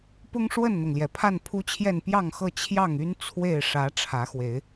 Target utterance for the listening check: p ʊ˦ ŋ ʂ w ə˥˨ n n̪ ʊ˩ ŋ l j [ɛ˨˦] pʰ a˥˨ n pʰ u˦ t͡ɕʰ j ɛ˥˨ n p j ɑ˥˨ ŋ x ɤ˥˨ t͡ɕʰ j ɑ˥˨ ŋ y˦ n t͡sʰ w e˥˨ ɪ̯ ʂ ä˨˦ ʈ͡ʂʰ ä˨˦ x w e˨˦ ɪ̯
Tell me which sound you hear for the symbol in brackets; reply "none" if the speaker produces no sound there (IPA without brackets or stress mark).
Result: ɛ˩